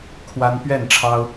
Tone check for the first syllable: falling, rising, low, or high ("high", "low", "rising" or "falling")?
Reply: high